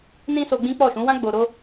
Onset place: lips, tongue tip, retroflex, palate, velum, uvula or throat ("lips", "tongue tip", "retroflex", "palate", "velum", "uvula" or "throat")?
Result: tongue tip